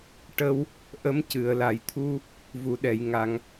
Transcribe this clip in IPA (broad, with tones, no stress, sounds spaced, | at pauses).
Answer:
ʈ ə˧ w | ʔ ə˧˥ m c ɨ˨˩˨ ə̯ l a˨˩˨ j t̪ʰ u˧ | v u˨˩˨ ɗ ɛ˨˩˨ j ŋ a˨˩˨ ŋ